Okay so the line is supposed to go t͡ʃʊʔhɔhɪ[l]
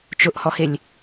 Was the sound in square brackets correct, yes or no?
no